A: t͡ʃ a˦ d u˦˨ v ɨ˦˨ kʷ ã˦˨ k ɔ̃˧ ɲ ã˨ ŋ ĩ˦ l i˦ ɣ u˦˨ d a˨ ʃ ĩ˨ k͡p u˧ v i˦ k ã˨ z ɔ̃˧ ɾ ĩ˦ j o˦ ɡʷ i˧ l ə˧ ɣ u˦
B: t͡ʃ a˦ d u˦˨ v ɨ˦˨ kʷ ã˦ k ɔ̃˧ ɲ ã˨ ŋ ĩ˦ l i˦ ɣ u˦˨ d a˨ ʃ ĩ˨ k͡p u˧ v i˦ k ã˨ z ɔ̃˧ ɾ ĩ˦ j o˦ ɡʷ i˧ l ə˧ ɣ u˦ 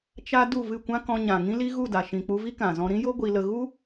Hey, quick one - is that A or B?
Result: B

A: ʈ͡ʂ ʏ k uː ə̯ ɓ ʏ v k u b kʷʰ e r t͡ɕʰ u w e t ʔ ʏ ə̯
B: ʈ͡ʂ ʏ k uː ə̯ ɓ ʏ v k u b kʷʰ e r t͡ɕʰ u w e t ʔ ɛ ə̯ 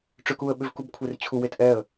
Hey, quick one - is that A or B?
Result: B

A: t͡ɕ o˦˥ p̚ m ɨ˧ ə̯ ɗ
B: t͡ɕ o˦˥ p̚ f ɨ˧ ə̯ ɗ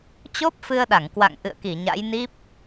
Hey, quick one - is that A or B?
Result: B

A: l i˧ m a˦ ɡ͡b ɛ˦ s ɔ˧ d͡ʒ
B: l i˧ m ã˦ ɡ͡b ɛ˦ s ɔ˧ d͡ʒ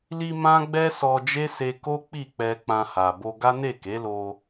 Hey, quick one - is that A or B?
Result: B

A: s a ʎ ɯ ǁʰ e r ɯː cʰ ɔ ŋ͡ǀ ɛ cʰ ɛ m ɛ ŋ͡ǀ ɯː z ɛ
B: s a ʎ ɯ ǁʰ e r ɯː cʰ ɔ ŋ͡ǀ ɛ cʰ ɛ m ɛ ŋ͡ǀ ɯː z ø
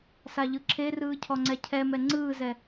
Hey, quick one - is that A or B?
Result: A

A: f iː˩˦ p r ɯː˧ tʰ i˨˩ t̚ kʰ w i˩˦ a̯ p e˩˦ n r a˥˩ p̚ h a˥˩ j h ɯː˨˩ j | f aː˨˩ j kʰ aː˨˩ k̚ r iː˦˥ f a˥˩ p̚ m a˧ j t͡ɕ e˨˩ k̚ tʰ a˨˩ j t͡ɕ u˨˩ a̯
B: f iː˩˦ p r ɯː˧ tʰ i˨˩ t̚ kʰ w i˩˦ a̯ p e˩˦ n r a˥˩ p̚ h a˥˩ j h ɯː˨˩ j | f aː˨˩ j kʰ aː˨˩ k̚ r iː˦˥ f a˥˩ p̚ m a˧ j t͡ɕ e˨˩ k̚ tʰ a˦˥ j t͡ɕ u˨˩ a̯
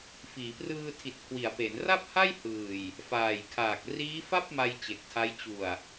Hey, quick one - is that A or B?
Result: B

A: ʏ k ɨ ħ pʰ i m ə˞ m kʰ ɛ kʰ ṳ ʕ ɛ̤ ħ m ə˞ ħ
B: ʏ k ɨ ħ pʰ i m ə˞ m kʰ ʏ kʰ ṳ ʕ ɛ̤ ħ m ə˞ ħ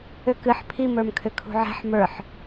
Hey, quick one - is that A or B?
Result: B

